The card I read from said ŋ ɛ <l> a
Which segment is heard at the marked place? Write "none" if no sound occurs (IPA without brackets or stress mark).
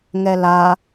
l